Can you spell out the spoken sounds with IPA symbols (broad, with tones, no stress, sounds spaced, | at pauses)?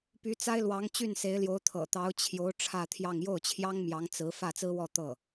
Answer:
p y˧˥ t͡s a˥ ɪ̯ l w ɑ˧˥ ŋ t͡ɕ y˥˩ n s e˧˥ ɪ̯ l j o˧˥ ʊ̯ t̪ʰ ɤ̰˨˩ t̪ ɑ˧˥ ʊ̯ t͡ɕʰ j o˧˥ ʊ̯ ʈ͡ʂʰ ä˥˧ t̪ʰ j ɑ˥˧ ŋ j o˥˩ ʊ̯ t͡ɕʰ j ɑ˥ ŋ m j ɑ˧˥ ŋ t͡s ɹ̩˧˥ f ä˥˩ t͡s ɹ̩˥ w ɔ˥˧ t̪ ɤ˥˩